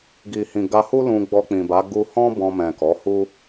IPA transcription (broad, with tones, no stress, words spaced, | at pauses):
ɡi˨hĩ˨ ɡa˧hu˦ lũ˧ɡ͡bɔ˧k͡pĩ˨ba˨˦ ɡu˧hɔ̃˦ bɔ̃˧mɛ̃˨kɔ˨˦hu˦